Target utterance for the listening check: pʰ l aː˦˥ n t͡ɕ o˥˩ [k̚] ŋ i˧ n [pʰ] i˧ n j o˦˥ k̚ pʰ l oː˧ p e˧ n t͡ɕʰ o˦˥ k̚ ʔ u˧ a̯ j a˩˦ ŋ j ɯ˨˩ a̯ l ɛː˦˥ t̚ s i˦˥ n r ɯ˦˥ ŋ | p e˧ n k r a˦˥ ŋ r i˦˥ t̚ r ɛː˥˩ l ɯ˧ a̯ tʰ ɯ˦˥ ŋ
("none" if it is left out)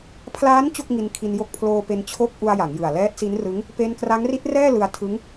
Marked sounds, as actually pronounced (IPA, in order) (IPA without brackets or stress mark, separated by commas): k̚, kʰ